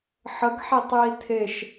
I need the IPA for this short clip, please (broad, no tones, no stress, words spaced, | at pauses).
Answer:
ħəɡħetˤji tʰeʃ